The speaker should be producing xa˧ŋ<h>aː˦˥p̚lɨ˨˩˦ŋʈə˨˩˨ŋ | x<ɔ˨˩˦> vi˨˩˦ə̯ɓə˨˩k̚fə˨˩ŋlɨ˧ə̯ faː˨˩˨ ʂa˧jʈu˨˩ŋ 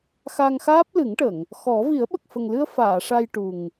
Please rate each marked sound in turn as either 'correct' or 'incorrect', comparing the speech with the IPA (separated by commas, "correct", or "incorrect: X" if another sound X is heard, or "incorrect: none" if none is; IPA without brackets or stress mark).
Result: incorrect: x, correct